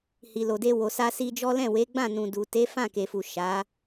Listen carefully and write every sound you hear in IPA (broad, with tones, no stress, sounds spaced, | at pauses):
h i˨ l o˨ d e˧ w o˨ s a˧ s i˧ d͡ʒ ɔ˦ l ɛ̃˦˨ w e˨˦ ɡ͡b ã˦˨ n ũ˨ d u˨ t e˨˦ f ã˦˨ k e˨ f u˨ ʃ a˨˦